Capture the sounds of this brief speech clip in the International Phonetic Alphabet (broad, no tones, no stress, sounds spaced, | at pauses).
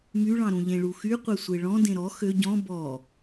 m y ɭ ɑ̃ ɾ ũ ʎ ẽ ɭ u x y qʷ e sʷ e ɭ ɔ̃ d ẽ ɾ ɔ x ø ɟ ɔ̃ b ɔ